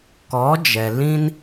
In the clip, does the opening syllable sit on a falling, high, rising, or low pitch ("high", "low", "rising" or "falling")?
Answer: rising